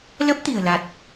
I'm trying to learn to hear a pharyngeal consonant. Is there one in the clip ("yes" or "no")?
no